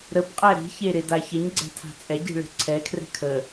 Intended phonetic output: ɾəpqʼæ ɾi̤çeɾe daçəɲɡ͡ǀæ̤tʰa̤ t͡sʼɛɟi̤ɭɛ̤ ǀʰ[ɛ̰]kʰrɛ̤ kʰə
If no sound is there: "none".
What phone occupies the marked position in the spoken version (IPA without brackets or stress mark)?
ɛ